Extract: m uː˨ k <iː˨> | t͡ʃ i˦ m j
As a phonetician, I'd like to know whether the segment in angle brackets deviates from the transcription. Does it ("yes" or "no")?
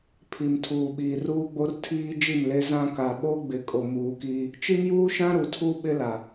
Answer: yes